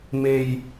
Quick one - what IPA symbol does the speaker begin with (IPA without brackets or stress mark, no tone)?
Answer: m